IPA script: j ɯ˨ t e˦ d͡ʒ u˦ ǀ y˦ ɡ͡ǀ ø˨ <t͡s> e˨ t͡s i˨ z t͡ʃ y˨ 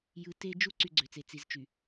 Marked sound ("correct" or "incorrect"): correct